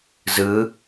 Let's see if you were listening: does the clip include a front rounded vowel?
no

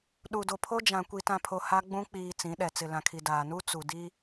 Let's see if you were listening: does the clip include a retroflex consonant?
no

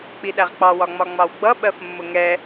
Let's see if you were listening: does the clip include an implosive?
yes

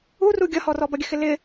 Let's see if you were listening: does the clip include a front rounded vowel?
no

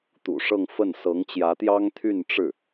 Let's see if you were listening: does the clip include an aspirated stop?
yes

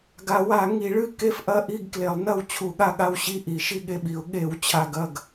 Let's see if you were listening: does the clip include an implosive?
yes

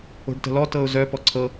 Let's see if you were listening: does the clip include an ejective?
no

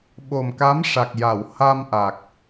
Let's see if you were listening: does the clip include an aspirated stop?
no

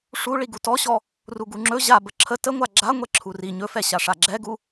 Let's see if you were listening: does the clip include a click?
yes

